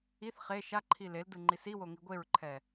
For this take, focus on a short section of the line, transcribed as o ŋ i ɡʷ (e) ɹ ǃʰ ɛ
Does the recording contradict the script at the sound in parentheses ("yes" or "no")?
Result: no